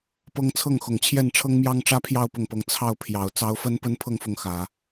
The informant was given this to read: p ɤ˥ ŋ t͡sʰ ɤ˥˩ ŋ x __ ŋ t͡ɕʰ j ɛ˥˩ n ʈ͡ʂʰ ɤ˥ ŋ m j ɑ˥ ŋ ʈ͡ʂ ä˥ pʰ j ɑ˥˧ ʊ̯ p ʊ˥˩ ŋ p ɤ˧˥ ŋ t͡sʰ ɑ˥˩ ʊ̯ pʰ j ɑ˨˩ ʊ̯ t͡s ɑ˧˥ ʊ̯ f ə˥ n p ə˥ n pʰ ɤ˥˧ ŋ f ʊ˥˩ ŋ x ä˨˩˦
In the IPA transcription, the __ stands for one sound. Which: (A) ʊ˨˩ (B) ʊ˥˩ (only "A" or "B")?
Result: A